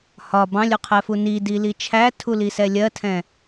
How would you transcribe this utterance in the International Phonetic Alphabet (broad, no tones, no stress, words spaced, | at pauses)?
hɒ bɑ̃lʲuqʰɛfu nidili t͡ʃʰætʰulisɛ lʲɜtʰɛ̃